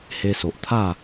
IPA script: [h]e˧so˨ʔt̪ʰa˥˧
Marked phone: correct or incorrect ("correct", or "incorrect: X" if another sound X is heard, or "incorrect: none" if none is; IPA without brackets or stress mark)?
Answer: correct